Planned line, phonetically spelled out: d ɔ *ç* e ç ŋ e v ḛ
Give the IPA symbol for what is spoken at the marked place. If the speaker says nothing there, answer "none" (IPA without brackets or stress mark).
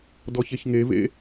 ç